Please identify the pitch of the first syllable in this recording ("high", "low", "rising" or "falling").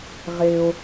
high